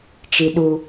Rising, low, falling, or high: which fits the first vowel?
low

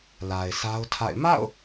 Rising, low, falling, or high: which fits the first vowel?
low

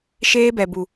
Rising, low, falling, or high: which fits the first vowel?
high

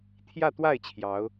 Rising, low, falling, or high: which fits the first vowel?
falling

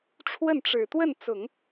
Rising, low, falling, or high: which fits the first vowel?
falling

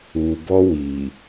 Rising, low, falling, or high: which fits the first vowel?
low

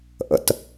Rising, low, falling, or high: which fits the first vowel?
low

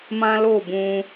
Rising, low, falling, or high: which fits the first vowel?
high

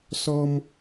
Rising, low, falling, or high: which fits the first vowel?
high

